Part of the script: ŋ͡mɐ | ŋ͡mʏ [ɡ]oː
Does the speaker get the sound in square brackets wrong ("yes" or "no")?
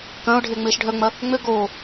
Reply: no